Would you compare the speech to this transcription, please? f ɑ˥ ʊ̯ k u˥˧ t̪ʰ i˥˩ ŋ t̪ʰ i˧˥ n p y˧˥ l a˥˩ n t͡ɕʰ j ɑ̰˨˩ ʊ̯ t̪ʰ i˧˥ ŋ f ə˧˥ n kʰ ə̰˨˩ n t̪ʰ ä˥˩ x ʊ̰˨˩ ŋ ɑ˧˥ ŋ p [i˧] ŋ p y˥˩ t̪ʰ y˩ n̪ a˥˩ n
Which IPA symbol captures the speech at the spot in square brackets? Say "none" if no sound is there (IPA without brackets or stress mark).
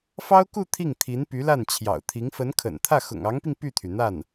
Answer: i˧